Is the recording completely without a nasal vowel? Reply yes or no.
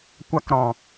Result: no